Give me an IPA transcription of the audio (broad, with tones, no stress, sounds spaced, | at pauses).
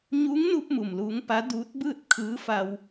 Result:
ɲ u˧˥ ŋ n u˧ p̚ m u˩ m l uː˧˥ ŋ p a˧˥ d uː˧˥ t̚ b ɯː˥˨ t̚ kʰ ɯː˧˥ f a˧ w